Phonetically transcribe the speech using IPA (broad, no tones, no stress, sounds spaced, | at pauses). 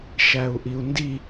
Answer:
ʃ æ u̯ ʔ i u̯ n d i